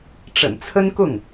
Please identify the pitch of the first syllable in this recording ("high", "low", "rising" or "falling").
low